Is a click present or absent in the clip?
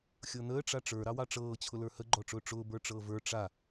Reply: present